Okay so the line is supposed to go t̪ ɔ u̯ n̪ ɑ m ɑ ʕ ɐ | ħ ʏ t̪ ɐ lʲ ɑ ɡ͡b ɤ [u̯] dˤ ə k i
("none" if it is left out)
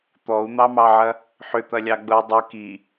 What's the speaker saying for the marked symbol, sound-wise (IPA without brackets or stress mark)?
y̯